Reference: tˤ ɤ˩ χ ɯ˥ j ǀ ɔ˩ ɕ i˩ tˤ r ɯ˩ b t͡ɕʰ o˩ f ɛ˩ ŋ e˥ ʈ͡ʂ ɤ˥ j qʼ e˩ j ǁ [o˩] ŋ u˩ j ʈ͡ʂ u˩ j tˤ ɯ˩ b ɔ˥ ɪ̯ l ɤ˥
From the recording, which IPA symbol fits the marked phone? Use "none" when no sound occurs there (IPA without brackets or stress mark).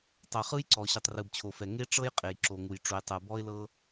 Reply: o˩